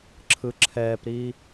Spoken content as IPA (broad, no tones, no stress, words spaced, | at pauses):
ǁʰɯǁʰɛːpɾiː